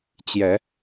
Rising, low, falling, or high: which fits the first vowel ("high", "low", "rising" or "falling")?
rising